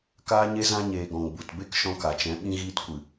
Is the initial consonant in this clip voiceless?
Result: yes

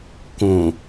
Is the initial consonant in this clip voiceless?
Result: yes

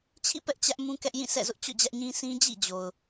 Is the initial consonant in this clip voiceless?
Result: yes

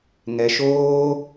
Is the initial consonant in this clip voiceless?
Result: no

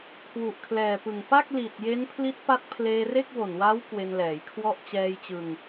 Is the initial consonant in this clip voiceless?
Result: yes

